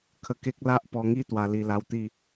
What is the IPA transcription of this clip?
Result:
kʰ ə˧ k e˦ k̚ l a˦ ʔ p ɔ˧ ŋ i˦ t̪ w a˧ l i˧ l a˧ w t̪ i˥˧

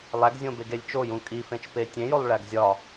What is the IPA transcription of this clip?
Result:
lˠ æ ɡ zʲ õ b e ɡ e lʲ t͡ʃ o j ũ kʼ i f ẽ t͡ʃ p e tʲ ẽ j o lˠ ɭ æ ɡ zʲ ɒ

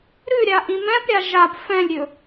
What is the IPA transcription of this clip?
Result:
ɾ ʉ ɾʲ a ʔ ĩ m ɛ̃ p ɾʲ a ʒ a p f ɛ̃ lʲ ɾʲ ɵ

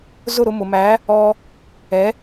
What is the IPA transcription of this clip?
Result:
z ʊ˥˩ ɾ ʊ˧ m ʊ˩ m æ˩˥ | ɔ˧ | ɛ˩˥

